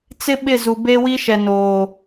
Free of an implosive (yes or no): no